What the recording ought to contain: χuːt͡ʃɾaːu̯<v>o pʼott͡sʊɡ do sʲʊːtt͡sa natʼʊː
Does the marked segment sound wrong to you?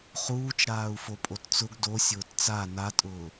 yes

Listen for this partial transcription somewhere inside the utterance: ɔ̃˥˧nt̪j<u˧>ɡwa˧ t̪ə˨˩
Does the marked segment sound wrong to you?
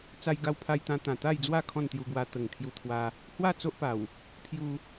no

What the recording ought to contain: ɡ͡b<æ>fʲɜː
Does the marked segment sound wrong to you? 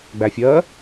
no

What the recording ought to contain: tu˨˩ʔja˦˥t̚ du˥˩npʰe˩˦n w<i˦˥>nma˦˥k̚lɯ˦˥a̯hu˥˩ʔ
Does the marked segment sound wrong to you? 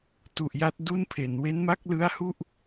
yes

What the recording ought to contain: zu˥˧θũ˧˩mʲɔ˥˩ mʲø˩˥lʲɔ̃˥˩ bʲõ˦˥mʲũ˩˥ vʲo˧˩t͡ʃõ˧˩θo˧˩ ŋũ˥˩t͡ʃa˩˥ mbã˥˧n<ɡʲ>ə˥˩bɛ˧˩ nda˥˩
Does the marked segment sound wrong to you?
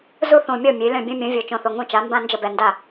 yes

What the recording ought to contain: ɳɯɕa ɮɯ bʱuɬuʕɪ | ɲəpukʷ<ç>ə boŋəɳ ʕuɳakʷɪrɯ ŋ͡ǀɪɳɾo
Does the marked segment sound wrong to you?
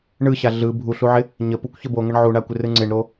no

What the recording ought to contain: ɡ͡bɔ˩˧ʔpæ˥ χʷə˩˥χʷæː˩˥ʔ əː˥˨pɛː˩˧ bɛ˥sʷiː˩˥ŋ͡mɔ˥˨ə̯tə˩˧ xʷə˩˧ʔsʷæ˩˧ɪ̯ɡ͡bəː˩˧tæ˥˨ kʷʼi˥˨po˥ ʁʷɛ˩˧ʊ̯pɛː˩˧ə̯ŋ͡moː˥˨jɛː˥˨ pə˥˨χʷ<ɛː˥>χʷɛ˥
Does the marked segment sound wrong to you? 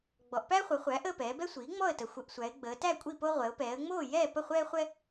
no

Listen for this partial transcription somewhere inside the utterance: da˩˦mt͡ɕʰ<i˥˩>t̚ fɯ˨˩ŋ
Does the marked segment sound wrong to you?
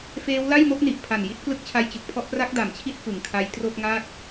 yes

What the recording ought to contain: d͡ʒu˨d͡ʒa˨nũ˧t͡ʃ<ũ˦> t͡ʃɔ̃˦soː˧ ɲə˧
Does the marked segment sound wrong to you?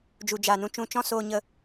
yes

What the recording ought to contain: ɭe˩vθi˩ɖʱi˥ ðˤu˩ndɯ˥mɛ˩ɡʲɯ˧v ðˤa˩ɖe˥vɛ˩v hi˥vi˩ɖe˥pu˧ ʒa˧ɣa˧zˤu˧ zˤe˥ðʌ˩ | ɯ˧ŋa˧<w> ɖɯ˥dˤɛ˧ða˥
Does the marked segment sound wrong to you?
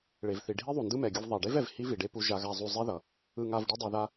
yes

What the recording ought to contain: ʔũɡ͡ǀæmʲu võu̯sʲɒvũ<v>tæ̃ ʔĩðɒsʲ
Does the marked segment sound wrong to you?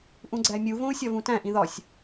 yes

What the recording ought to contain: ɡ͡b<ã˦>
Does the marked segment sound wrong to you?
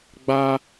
yes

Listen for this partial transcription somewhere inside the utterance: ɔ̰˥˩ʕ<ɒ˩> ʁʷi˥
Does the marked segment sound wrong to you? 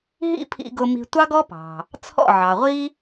yes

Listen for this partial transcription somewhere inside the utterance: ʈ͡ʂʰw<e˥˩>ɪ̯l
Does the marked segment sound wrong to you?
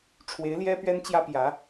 yes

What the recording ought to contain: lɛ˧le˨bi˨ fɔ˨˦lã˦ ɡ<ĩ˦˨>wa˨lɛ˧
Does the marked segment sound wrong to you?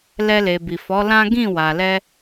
no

